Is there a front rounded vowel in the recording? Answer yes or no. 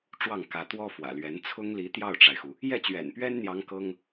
no